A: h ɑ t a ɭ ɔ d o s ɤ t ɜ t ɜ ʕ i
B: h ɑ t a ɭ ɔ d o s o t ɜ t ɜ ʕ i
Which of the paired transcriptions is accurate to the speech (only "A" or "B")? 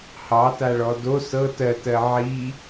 A